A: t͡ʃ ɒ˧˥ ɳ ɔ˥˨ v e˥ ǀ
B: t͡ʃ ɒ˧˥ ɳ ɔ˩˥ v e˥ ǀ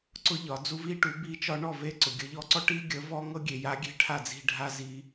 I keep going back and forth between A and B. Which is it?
A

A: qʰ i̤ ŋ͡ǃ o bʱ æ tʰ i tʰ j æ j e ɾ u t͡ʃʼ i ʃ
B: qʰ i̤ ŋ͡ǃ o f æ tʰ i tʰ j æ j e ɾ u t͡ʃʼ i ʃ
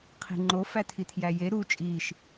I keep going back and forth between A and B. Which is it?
B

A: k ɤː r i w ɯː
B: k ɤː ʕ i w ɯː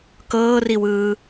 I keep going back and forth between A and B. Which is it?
A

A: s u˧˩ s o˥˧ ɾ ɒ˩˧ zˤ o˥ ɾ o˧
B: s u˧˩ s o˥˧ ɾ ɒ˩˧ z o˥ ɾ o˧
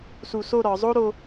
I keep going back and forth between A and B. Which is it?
A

